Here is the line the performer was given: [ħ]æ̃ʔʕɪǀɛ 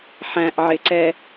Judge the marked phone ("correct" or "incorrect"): correct